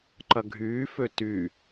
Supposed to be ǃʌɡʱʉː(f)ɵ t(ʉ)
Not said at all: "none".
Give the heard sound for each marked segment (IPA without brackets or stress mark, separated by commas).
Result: f, ʉ